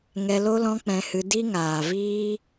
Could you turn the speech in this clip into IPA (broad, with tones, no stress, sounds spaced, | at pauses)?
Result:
ŋ ɛ˧ l o˦ l ɔ̃˦ k͡p ɛ̃˧ h ɨ˧ d i˦ ŋ aː˨ v iː˦